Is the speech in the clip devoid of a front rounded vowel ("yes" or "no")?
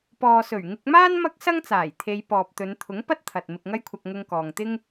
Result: yes